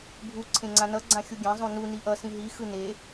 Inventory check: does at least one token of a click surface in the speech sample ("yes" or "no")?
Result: yes